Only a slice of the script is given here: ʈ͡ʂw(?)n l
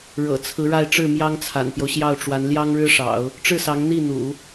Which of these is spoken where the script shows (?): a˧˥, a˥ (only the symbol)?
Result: a˧˥